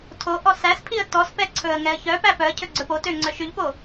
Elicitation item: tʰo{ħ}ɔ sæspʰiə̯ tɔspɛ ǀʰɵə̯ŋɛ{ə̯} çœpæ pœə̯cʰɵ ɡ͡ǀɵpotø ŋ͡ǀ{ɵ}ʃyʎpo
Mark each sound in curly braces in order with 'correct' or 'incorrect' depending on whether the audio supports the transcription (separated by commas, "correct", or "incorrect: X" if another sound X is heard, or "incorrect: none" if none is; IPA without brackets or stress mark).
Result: incorrect: ʔ, correct, incorrect: œ